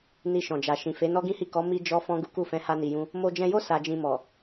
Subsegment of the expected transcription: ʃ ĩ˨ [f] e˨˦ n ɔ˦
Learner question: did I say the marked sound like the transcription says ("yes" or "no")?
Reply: yes